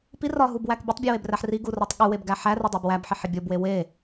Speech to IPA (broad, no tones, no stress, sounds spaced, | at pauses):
p i r ɒ ɦ u b w æ k bʲ e tˤ bʲ u w e b r æ ħ r i ɡ u r ɒ tˤ ɠ u w e b ɡ æ ħ æ r e dˤ o b w æ b ħ i ħ e bʲ o b w e w e